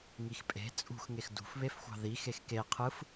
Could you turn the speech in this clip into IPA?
ŋ i x pʼ e̤ t͡sʼ ṳ x ŋ e x d ṳ f β e f xʷ ɑ̤ ð i x e x k e qʰ ɯ f

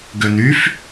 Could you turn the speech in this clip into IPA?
ɡ ø n y f

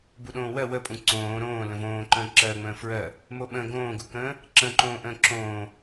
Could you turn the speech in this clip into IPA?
b u ɗ õː w ɜ w ə pʼ ũ ǀ õː ɾ õː l ə̃ v õː ǃ ə̃ː ǁ ɜː ŋ͡m ə̃ː f ɹ ɜ | m o ɓ ə̃ ɡ õː ɡ u k ə̃ː | ǁ ə̃ː ǃ õː ʔ ə̃ː ǁ õː

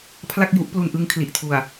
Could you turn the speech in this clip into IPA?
pʰ l a˥˩ k̚ j u˦˥ ʔ p l u˧ n ʔ ɯ˦˥ ŋ kʰ l i˨˩ ʔ tʰ u˨˩ a̯

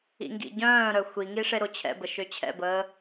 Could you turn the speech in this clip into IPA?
ḭ ŋ ɡ ḭ ɟ œ̃ː ɾ œ xʷ i ŋ i ʂ e ɾ o t͡ɕʰ ɛ̰ b ə ʃ ø t͡ɕʰ ɛ̰ b əː

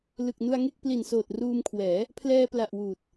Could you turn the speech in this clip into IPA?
l ɯ˨˩ k̚ n u˧ a̯ ŋ e˥˩ k̚ p l i˨˩ n s oː˨˩ t̚ r uː˧ m kʰ w ɛː˩˦ | pʰ l ɛː˧ p l a˨˩ ʔ w uː˨˩ t̚

